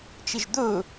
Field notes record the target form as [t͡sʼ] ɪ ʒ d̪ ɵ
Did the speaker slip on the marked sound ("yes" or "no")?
yes